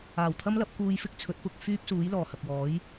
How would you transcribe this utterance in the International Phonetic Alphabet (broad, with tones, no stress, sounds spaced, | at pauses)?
aː˨˩ w t̪ʰ ɐ˥ m l ɐ˨˥ p̚ k uː˧ j f ɪ˥ k̚ t͡sʰ ɵ˨˥ t̚ p ʊ˧ k̚ f yː˥ p̚ s uː˨˥ j l ɔː˨˩ h ɐ˨ k̚ w ɔː˨˥ j